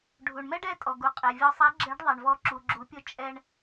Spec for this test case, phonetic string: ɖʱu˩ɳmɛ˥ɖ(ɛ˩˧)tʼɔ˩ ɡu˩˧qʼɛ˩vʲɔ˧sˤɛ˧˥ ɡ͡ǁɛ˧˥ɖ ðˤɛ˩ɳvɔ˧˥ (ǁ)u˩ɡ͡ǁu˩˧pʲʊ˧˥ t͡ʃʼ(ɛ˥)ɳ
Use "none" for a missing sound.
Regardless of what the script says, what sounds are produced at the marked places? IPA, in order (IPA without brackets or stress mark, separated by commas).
ɛ˧˥, ǁ, ɛ˧